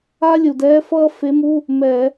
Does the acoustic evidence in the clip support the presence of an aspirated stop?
no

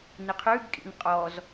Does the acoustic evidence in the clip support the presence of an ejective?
yes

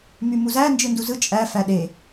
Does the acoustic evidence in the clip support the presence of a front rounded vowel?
yes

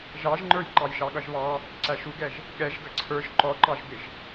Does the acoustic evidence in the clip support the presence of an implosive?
yes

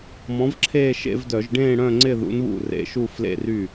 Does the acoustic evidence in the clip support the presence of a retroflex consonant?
yes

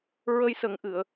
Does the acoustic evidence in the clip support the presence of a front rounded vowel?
no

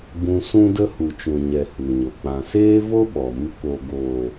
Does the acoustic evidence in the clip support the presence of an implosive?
yes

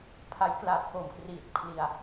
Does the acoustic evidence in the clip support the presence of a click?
no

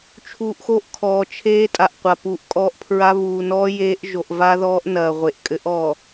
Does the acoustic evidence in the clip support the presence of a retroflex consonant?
no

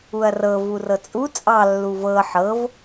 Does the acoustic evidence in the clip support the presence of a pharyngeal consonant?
yes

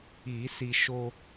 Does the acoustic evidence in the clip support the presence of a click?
no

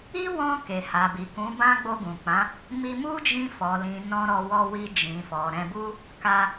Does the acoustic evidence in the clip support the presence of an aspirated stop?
no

